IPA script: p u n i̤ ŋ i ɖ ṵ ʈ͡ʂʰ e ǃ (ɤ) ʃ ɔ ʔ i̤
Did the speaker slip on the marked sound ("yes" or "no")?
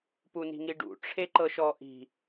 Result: no